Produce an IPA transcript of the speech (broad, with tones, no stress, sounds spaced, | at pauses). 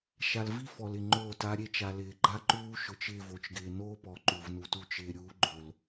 ʃ a˨ l v i˦ f ɔ˨ l ɪ˨ ŋ͡ǃ oː˦˨ t a˦ ɾʲ e˦ t͡ʃ a˨ l ɪː˨ ɡ͡ǃ a˦ ǃ uː˦ ʃ ʊ˨ t͡ʃ ɪː˦˨ v o˨ t͡ʃ ɡ ɪː˨ n oː˦ p ɔ˨ ǃ u˨ v n u˨ t u˦ t͡ʃ ɪː˨ ɾʲ uː˨˦ ɡ͡ǃ o˨ l